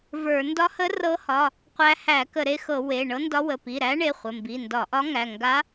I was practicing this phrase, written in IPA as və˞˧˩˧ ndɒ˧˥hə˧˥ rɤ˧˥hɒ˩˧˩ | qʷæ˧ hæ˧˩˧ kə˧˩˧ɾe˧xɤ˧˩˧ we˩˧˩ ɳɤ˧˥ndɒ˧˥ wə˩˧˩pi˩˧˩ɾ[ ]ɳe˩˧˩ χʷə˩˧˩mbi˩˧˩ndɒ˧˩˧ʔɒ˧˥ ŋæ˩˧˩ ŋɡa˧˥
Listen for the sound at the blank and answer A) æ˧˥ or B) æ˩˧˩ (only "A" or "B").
A